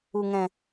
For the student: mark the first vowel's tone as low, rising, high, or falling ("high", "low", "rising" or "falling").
low